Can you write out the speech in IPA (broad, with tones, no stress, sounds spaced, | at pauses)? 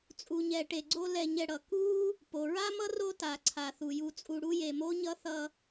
t͡sʼ u˨ ɲ ɛ˨ ʈ e˨ ɡ͡ǀ o˦ l ɛ˨ ɲ ɛ˨ ɽ ʌ˩ k u˥ | p o˩ ɹ a˥ m ʌ˥ r o˦ t a˩ ǀʰ a˩ θ u˩ j u˨ t͡sʼ u˨ ɽ u˦ j e˨ m o˥ ɲ ʌ˥ θ ʌ˦